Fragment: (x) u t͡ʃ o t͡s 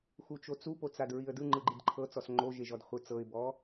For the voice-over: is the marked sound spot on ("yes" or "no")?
yes